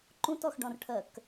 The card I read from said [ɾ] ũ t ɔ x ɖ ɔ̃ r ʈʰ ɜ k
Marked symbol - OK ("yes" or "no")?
no